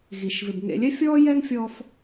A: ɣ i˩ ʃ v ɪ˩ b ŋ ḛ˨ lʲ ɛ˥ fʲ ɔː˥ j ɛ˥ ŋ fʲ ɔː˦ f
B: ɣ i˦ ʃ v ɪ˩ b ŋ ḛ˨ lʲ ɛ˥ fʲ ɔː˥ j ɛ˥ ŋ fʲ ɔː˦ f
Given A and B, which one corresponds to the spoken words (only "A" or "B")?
A